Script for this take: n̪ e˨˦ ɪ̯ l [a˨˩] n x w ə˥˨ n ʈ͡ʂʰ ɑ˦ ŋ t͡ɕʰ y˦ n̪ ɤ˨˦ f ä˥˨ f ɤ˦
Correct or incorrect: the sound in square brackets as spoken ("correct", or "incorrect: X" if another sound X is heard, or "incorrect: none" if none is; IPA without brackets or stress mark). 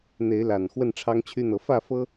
correct